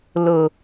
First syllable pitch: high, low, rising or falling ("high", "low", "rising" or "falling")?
low